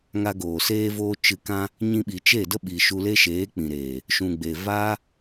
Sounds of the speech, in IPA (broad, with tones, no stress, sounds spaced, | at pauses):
ŋ a˧ ɡ oː˨ s eː˦ v oː˦ t͡ʃ ɨ˧ k ã˦ | ɲ ĩ˧ ɓ i˨ t͡ʃ e˦˨ d ə˦ ɓ i˨ ʃ u˧ l e˦ ʃ eː˨˦ k͡p ĩ˨ ɾ eː˨ | ʃ ũ˨ ɡ͡b e˨ v a˦